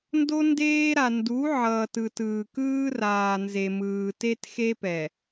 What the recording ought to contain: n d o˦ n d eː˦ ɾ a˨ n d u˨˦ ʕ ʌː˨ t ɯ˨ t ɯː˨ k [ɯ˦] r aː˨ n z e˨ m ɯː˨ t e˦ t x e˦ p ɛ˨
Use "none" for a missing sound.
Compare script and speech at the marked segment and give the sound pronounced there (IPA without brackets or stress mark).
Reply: ɯː˦